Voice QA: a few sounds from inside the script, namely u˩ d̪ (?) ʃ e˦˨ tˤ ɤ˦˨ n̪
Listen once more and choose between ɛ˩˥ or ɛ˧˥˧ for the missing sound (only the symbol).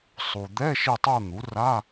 ɛ˧˥˧